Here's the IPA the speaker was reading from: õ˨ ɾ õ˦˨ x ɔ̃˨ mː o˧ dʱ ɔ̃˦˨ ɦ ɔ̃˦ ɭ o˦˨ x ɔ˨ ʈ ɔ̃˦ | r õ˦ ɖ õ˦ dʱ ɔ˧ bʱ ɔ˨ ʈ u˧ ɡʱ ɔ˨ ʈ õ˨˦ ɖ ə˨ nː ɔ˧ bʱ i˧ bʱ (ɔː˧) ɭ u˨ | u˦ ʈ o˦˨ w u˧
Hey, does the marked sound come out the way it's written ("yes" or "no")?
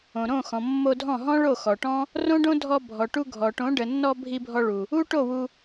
no